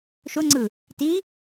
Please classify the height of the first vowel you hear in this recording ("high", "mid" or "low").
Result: high